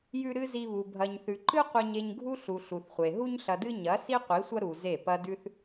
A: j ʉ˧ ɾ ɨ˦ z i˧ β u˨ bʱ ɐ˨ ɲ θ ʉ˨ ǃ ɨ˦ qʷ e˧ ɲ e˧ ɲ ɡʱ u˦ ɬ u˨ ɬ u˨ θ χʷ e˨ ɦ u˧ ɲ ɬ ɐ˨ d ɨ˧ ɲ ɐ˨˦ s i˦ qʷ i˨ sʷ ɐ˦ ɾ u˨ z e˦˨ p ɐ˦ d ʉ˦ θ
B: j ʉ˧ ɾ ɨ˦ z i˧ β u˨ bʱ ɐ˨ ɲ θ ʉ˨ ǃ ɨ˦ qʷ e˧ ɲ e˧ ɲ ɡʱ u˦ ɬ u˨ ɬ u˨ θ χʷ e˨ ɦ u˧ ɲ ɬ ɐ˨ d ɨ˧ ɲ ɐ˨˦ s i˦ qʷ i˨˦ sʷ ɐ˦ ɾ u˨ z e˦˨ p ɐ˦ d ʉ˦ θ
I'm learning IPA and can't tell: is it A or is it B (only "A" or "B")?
B